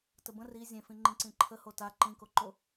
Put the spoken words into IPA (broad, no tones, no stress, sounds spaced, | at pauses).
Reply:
t ə b ə̃ r i zʲ ẽ f ĩ ŋ͡ǃ ĩ ǀ ĩ ǃʰ ə h o t a ǃ ĩ k o ǃ o